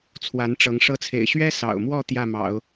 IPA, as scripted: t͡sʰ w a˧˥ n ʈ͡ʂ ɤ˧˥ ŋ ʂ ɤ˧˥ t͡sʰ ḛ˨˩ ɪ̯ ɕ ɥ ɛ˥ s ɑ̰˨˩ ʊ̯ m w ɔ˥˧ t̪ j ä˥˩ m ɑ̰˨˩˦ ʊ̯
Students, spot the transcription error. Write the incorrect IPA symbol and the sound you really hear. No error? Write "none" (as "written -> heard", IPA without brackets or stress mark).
none